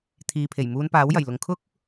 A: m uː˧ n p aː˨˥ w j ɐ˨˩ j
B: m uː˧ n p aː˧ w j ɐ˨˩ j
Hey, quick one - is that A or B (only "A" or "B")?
A